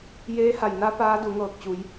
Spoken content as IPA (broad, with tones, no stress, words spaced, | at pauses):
jeː˧˥ ha˧˩jna˧˥ paː˧˥du˩˧ ŋɤː˧˩k̚t͡ɕu˩˧j